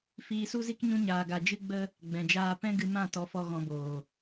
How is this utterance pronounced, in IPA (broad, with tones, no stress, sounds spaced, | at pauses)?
f iː˧ s u˦ z i˦ k ɲ ũ˧ ɲ aː˨ ɡ a˨ d͡ʒ ɨ˦ ɡ͡b ə˦ | ɡ͡b ɛ̃˨ d͡ʒ aː˧ p ɛ̃˦ ɡ ɨ˧ m ã˦˨ t ɔ˧ f ɔ˧ ɣ ɔ̃˧ b oː˨